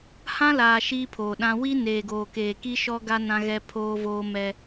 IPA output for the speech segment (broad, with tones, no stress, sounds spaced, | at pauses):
h ã˦ l aː˨ ʃ iː˦ pʰ oː˨ ɗ ã˦ w i˦ n eː˨ ɡ oː˨ k eː˨ k i˦ ʃ ɔ˦ ɡ a˦ n ã˦ ɣ ɛ˦ pʰ oː˦ v oː˦ m ɛ˦